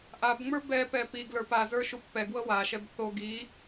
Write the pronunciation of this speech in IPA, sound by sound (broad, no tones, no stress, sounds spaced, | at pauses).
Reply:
ʔ a b ŋ͡m ə˞ b ɛ p ɛ p i ɡ l ə˞ p a z ə˞ ʃ u pː ɛ ɡ w ɤ w a ʃ ɛ b θ o ɡ i